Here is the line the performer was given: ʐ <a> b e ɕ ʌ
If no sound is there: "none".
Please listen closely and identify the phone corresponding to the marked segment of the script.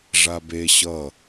a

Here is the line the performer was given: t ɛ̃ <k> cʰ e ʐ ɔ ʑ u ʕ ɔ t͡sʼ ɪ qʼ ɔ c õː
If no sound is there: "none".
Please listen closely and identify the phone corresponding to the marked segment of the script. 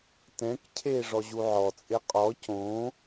k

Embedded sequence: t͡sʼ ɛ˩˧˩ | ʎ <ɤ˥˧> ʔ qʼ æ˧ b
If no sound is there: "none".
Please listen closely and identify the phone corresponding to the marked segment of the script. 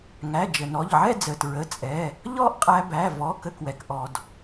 ɔ˥˧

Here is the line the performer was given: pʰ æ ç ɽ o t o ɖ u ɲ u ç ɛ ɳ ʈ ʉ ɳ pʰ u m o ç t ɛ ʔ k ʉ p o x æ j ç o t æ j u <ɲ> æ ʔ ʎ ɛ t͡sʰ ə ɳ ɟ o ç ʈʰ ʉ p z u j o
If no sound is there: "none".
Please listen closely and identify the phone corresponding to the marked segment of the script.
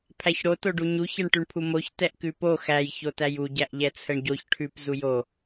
ɟ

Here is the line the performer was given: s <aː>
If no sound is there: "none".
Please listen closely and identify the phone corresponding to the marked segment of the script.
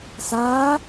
aː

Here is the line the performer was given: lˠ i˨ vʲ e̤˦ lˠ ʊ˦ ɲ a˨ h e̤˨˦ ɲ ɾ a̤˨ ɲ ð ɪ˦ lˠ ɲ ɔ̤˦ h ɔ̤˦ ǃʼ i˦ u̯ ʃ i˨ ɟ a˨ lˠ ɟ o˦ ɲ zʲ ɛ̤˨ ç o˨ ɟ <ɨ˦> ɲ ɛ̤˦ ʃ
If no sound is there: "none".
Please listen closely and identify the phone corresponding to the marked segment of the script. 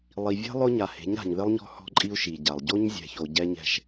ɛ˦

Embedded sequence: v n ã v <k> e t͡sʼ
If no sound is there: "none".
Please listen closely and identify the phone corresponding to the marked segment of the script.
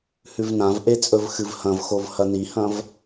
ʔ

